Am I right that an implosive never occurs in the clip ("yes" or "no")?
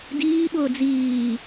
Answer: no